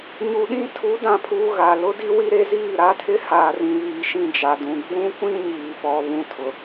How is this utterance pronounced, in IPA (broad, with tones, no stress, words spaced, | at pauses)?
ɲu˨ɗĩ˦ tʰu˨˦dã˨pʰuː˨ ɣa˨ lʊ˦di˦wi˦ɾe˦ ziː˦˨ɾa˦tʰɪ˦ haː˨rĩ˨βiː˨ʃĩ˦˨ d͡ʒa˨dũ˨ ɡ͡bũ˦kʷĩ˦ɲiː˨pɔ˨ βũ˦tʰʊ˨